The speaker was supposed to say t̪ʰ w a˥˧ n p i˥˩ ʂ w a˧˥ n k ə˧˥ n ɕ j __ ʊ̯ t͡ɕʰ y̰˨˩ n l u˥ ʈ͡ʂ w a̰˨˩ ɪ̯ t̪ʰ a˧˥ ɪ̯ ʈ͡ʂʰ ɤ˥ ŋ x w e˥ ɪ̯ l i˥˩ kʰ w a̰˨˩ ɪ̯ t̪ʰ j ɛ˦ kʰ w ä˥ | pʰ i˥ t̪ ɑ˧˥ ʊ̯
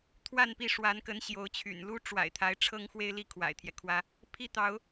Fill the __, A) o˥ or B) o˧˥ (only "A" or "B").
B